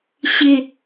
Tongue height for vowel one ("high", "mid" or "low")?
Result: high